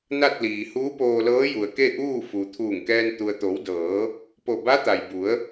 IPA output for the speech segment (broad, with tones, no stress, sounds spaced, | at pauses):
n a˥˨ t̚ l iː˩ h uː˧˥ p oː˧ l ɤː˧˥ j u˩ ə̯ k e˥˨ ʔ uː˥˨ f u˩ t̪ʰ uː˧˩ ŋ k ɛː˧ n t̪ u˩ ə̯ t̪ o˩˧ w d ɤː˩˧ | p o˧˩ b a˧˥ t̪ a˩ j b u˩˧ ə̯